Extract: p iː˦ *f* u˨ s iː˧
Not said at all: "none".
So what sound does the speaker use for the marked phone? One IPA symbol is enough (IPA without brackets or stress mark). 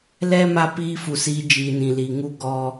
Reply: f